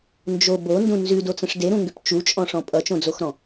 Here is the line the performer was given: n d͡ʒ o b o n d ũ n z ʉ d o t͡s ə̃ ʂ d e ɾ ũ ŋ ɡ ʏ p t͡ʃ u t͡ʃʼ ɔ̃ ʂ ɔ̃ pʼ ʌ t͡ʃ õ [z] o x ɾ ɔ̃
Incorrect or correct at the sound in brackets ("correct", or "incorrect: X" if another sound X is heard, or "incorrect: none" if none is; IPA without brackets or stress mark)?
incorrect: d͡z